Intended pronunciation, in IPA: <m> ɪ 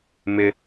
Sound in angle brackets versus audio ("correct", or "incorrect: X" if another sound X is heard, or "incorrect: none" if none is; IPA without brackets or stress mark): correct